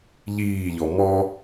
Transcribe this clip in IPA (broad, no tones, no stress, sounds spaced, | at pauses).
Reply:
ʎ iː ʎ ɔ m ɔ